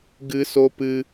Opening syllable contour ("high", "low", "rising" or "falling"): high